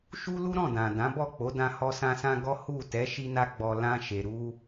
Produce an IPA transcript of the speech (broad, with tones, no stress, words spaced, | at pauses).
ʃu˦lu˦ɾɔ̃˦˨ dã˨ dã˨˦bɔ˦˨k͡po˨˦ dã˧hɔ˧sã˧sã˧ ɡɔ˦ hu˦˨ tɛ˨˦ʃi˧na˧ɡ͡bɔ˨ lã˧ ʃe˨ ɾu˧